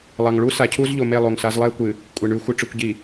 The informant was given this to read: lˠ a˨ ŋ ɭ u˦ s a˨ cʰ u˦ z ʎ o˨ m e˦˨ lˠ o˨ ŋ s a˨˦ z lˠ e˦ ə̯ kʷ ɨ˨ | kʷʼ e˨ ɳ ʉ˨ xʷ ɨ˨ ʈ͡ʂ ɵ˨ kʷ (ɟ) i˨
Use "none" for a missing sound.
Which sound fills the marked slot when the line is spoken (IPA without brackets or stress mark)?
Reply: ɟ